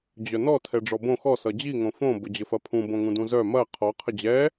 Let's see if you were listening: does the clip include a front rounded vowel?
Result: yes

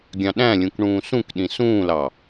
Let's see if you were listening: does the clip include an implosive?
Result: yes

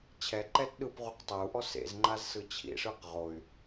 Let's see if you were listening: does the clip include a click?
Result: yes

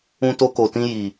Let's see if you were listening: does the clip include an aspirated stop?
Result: no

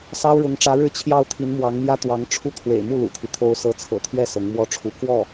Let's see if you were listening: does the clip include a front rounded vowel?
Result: no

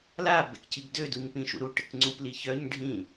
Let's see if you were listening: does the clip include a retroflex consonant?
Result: yes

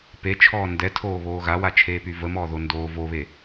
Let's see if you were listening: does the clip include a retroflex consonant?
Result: no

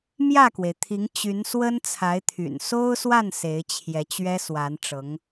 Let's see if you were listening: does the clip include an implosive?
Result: no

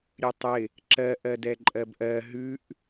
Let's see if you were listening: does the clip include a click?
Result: yes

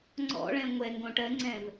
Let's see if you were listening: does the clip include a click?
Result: yes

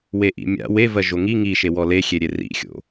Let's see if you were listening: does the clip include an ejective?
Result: no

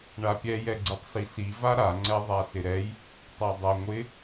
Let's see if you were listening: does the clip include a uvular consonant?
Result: no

